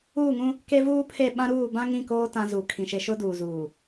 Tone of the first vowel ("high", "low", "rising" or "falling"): falling